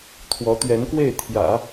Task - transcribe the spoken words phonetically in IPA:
t̪ʰ w ɔ˧˥ t̪ ɥ ɛ˧˥ n k w e˥˩ ɪ̯ t̪ʰ j ä̰˨˩˦

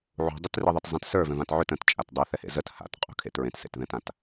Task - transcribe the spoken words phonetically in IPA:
ʕ ṳ dˤ e t r i ðˤ i t zˤ ẽ t s ə˞ v ɛ̃ v ã t ʕ ʏ t ə̃ t t͡ʃʼ a t dˤ ɛ θ ɛ h ḛ z ə t h a̰ t qʼ ṳ kʰ ḛ t ɹ ẽ t s ḛ t ð ɛ̃ t ã t

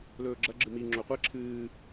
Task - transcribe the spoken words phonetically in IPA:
l ɵː ɡ͡ǁ ɐ ɡ͡ǁ ɨ m i ŋ͡ǁ o qʷ e ǁʰ ɨː

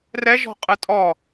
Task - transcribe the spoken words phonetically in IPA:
r ɛ ʒ ɔ̤ qʼ ɯ tʼ ɔ

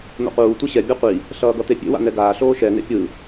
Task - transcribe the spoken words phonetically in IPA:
n̪ o̰ q uː tʷ e ɕ ɛ bʲ a qʷ i | ɬ ʌː ɡ ʌ t̪ e pʲ ḛ w a̰ n ɛ ɡ aː ɬ oː ʃ ɛ n ḛ pʲ ɯ

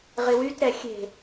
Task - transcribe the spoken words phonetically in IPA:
ʁ ɪ w y t ɾ ɛ xʲ e̤

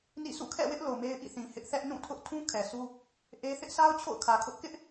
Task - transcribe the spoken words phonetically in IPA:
n ḭ˦˨ sʰ ṵ˦˨ kʰ ɛ̰˦˨ w ɪ˦ ʔ l o˨ m e˦ ɪ̯ ʔ ḭ˦˨ θ ĩ˨ h ɪ˦ ʔ θ ɛ˦ ʔ n ũ˦˨ tʰ ʊ˦ ʔ tʰ ũ˦ kʰ ɛ˨ sʰ u˦ | ʔ e˦ θ ɪ˦ ʔ s a˦ ʊ̯ t͡ɕʰ o̰˦˨ ʊ̯ kʰ ä˨ kʰ ʊ˦ ʔ k ɪ˦ ʔ

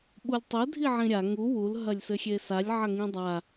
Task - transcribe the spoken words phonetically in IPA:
ɓ u lʲ tˤ ɘ dʱ i ʕ ĩ ɾʲ a ŋ u w u l ɦ ɐ lʲ s ɘ xʲ e s a lʲ ʕ ɐ ŋ ĩ dˤ a

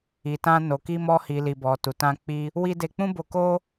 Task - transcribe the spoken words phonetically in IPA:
i˨ t ã˧ n o˨ k i˧ m ɔ˧ h i˨ l i˨ b ɔ˨ t u˨ t ã˧ k͡p i˧ | w i˦ d e˧ k͡p ũ˦ b o˧ k o˦

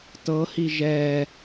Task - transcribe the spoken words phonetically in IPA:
t ɤ h i ʒ ɛ

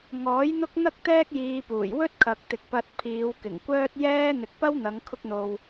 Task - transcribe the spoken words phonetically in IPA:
ŋ ɔː˨˥ j n̪ ʊ˥ k̚ n̪ ɐ˥ k̚ t̪ ɛː˥ k̚ j iː˧ p uː˨˩ j w ɵ˥ t̚ kʰ ɐ˨ k̚ t̪ ɪ˨ k̚ p ɐ˧ t̚ pʰ iː˨˧ w k ɪ˨˩ ŋ kʷ œː˥ t̚ j ɛː˥ n̪ ɪ˨ k̚ p ɐ˥ w n̪ ɐ˨˧ ŋ kʰ ʊ˥ k̚ n̪ o˧ w

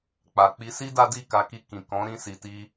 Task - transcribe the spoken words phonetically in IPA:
k͡p a˨ k͡p i˧ s i˦ d a˦ d i˦˨ k a˧ k i˧ k ĩ˨ k ɔ̃˨˦ ɾ ĩ˧ s i˨ t i˧

